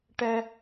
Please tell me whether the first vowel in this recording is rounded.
no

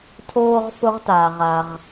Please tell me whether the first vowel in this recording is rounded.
yes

